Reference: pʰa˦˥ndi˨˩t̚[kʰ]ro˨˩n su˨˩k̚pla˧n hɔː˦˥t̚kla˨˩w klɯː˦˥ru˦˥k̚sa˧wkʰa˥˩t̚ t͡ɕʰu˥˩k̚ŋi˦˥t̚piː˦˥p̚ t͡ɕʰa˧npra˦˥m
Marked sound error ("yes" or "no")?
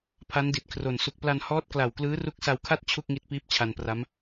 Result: no